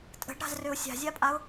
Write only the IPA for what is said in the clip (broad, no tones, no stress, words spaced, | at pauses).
tʼə̤ɖɾa̤zrøʊ̯ sʲa̤zʲapʼaʊ̯